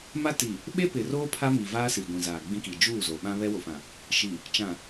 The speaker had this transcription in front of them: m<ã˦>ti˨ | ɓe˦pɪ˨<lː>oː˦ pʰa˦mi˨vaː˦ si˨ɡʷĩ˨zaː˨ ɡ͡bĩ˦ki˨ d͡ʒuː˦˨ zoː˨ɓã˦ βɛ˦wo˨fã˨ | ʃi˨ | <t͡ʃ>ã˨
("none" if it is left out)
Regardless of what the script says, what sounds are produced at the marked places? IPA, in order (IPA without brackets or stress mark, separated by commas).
a˦, r, t͡ʃ